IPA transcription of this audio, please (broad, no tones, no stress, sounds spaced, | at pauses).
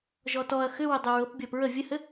ʒ ɔ t ɔ ɐ̯ x ʏ w ʏ dˤ ʏ ɹ ɤ p bʲ ɔ p ɹ ə vʲ ə h ɘ